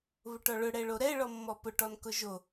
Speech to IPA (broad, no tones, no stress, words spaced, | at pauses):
βʊʈɔɭʊ ɽɛɭoɾɛ ɭɔmːɔpʊ ʈɔnkʊʒo